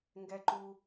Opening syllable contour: low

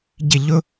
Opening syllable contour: falling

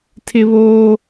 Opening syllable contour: high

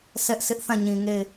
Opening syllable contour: high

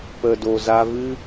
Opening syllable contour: low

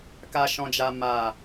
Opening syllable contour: high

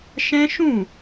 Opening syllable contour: high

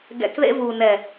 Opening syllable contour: low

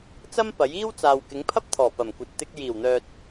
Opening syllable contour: high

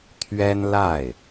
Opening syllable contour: high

